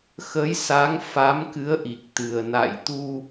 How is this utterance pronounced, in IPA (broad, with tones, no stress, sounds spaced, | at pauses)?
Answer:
x ə˨˦ j s a˨˦ ŋ f a˨˦ m k ɨ˨˦ ə̯ ʔ i˨˩ k̚ t̪ ɨ˨˩ ə̯ n a̰˧˨ j t̪ u˧